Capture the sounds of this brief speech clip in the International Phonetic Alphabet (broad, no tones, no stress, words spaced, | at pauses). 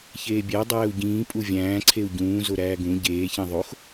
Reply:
çeːbʲæ dˤæːu̯ɟĩː pʼuvʲæ̃ːǀʰeu̯ ɟũː zoɾæːɡũ ɟeːçẽ ðˤox